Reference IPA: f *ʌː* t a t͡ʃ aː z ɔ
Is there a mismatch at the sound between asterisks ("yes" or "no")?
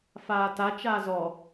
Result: yes